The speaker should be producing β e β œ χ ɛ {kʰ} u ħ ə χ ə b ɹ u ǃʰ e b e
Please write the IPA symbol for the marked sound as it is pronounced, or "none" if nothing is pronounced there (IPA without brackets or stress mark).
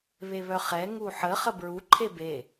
ŋ